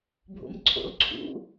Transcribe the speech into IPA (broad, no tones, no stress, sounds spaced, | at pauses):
bʱ o̰ m ǀʰ o̰ l ǀʰ ṵ